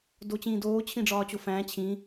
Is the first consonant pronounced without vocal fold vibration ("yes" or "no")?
no